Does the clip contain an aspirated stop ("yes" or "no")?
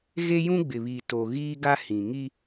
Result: no